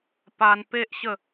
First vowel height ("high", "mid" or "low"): low